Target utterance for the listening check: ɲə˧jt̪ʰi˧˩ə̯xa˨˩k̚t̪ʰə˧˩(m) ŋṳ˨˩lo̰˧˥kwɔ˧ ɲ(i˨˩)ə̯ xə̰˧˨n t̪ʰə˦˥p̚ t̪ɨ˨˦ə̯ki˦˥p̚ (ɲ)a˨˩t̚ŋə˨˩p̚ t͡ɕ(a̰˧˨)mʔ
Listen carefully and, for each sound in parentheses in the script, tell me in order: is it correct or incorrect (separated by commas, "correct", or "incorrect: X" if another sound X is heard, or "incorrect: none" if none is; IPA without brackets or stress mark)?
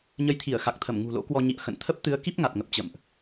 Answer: correct, incorrect: ḭ˧˨, incorrect: ŋ, incorrect: ə̰˧˨